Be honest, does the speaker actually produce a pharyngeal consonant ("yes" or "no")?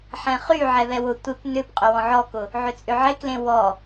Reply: yes